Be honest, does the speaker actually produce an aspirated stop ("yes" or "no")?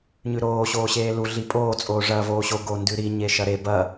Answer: no